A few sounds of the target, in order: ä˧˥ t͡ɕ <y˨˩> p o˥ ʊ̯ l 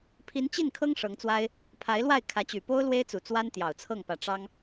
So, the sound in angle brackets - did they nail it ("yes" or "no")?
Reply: yes